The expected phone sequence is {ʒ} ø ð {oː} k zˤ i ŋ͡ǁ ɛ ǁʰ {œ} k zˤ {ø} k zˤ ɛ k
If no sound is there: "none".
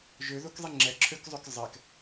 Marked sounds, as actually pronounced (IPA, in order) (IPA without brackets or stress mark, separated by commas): ʒ, o, ø, ø